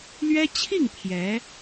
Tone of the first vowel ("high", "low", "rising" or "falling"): high